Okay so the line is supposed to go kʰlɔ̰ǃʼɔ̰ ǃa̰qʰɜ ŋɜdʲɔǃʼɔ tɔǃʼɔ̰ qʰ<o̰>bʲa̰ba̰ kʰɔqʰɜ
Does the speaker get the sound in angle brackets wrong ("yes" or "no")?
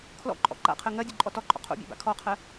no